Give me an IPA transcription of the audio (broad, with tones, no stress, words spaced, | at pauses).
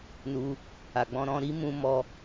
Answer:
nu˧ | a˨ɡ͡bɔ̃˧ ɾɔ̃˧ɾi˦mũ˧mɔ˧